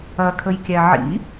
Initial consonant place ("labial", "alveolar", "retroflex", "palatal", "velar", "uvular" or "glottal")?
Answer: velar